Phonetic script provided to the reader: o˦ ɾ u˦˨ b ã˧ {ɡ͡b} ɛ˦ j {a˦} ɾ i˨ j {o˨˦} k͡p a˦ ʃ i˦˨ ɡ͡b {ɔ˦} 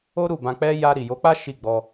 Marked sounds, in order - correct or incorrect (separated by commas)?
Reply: incorrect, incorrect, correct, incorrect